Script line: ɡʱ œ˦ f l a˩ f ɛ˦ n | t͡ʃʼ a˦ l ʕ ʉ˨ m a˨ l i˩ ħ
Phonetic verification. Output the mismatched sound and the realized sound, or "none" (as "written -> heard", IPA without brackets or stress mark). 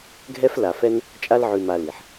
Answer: œ˦ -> ɛ˦